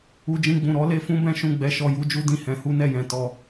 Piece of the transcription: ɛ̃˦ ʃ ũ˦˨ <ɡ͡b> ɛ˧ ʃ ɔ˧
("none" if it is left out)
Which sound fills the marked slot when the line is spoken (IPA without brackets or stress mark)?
ɡ͡b